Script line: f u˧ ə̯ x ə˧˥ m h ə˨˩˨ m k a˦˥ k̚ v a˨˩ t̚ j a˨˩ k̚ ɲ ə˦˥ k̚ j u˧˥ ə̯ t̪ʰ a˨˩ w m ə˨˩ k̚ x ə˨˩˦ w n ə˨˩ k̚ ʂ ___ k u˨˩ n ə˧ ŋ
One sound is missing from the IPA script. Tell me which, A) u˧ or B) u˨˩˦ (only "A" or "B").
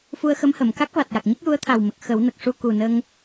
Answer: A